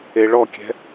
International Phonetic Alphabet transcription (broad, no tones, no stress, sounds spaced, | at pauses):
e ɭ ɔ kʲ ɛ̤